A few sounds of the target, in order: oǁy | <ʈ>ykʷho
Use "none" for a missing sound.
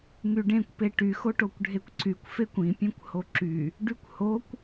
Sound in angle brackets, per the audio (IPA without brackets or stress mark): ɖ